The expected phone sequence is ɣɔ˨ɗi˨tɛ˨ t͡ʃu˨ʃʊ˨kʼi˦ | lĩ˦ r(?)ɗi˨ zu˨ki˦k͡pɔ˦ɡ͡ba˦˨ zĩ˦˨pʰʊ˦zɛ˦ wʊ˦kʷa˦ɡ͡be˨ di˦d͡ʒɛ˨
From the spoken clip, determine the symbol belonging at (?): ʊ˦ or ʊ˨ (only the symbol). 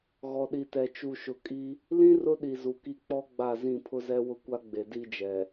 ʊ˦